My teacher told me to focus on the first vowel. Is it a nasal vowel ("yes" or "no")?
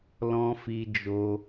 yes